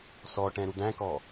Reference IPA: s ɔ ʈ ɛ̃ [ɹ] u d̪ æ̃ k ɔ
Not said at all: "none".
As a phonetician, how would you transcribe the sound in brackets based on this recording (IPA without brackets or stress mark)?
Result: ɾ